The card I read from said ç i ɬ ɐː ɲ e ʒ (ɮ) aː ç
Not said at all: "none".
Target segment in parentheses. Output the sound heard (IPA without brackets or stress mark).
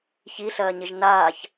n